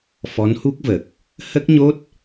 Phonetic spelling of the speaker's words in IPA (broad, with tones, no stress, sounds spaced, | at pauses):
f ɔ˧˥ n h u˦˥ k̚ v ə˨˩ k̚ | h ə˦˥ k̚ ɲ o˦˥ t̚